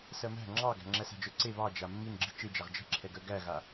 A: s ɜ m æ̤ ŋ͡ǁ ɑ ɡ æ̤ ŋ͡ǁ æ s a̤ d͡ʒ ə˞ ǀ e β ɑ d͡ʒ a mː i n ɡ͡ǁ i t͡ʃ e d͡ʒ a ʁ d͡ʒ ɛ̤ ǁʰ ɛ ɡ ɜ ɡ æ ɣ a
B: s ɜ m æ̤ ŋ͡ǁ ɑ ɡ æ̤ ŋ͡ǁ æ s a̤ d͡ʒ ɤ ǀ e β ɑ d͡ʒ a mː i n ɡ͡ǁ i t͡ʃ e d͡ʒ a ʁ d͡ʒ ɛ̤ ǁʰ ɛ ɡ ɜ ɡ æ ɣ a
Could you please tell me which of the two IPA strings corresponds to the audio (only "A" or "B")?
A